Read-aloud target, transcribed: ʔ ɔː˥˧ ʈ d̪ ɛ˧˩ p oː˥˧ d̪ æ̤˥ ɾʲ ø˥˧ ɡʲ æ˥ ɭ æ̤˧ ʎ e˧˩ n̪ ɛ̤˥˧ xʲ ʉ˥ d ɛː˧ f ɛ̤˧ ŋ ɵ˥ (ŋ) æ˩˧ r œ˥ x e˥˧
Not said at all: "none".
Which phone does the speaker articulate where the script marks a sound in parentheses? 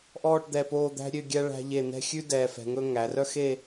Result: ŋ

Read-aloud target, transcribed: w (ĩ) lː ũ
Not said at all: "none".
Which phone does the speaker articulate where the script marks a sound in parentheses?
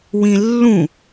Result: ĩ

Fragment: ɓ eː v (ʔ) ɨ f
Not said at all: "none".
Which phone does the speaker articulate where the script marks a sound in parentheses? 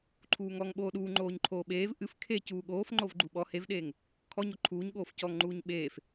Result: ʔ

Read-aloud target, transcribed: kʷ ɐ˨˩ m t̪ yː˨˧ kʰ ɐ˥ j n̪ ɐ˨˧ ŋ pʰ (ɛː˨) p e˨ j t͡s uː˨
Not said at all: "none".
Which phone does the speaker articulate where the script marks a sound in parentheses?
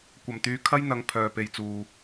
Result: œː˨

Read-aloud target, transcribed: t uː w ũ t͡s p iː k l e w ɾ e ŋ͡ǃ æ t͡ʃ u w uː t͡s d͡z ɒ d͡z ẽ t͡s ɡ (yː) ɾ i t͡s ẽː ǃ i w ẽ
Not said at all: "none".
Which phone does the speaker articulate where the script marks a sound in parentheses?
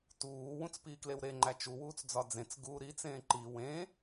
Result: uː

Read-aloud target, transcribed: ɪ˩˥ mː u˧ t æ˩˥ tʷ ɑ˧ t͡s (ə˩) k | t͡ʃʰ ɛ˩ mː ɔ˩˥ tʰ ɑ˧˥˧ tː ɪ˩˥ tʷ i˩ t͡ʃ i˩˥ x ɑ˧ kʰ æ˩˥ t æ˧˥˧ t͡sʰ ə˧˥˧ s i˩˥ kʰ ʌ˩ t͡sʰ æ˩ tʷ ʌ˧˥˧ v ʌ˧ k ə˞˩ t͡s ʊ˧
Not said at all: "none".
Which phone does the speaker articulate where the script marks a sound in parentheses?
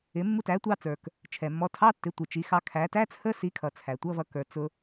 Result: ə˞˩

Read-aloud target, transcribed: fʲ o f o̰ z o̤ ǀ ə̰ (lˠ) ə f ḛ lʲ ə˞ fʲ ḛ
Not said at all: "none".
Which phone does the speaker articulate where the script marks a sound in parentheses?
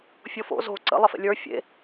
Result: lˠ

